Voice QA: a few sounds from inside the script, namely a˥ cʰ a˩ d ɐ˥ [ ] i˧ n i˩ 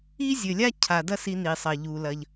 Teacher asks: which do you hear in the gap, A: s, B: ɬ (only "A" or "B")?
A